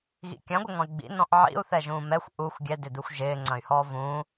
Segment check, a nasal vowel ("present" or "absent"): present